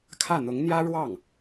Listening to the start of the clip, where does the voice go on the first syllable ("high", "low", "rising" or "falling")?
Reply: falling